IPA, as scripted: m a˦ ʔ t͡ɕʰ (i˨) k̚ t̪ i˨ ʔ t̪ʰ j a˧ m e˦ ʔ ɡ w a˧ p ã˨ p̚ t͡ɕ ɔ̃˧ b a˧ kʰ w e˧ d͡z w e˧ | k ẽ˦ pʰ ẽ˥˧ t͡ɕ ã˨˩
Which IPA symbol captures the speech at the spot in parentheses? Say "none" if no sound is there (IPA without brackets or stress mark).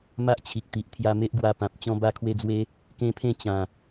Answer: i˨